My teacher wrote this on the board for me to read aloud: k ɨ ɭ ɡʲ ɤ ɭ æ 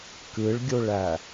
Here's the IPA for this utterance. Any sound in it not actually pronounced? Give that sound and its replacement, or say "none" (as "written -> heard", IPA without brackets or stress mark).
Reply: ɤ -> o